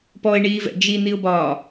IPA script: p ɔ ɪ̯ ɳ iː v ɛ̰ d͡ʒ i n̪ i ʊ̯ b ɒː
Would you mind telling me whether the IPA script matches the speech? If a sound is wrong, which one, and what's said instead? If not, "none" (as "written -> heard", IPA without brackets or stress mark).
none